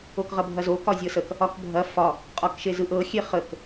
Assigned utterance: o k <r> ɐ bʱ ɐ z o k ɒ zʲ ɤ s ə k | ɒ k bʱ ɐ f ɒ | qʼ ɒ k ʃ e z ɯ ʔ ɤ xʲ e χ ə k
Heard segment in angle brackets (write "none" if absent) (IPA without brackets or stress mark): ʁ